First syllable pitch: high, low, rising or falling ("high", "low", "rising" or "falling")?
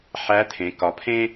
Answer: rising